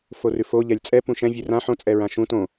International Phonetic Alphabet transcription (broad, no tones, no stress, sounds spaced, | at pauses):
f o r ʉ f o ʎ ɛ lʲ t͡sʼ ɛ p ũ ʃ ɛ̃ vʲ ʉ r ã ħ õ t͡sʼ ɛ ɹ ã ʃ ũ t õ